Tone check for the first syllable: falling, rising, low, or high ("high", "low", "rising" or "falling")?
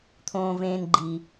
low